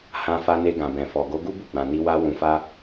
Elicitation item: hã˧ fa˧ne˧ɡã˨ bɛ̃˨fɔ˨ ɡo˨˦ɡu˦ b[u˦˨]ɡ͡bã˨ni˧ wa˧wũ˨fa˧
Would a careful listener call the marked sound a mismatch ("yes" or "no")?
no